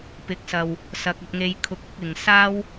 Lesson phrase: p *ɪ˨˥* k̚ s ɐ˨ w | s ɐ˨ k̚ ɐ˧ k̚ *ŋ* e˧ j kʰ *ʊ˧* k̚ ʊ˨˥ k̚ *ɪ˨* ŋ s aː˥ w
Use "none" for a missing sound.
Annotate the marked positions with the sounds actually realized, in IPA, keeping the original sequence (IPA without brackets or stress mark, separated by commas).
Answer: ɪ˨˥, ŋ, ʊ˧, ɪ˨